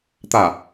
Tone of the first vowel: falling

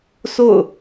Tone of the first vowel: falling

